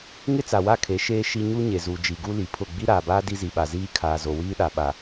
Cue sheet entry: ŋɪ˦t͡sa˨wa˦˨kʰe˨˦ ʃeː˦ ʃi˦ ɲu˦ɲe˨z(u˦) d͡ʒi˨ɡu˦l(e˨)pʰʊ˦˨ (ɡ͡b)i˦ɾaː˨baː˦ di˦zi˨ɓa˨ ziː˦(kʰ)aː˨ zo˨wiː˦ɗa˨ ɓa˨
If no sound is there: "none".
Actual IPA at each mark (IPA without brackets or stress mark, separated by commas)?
u˨, i˨, ɡ͡b, kʰ